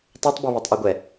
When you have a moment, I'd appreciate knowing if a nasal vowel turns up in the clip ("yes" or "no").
no